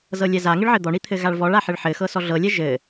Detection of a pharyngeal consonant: present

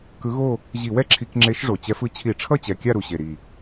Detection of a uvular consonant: absent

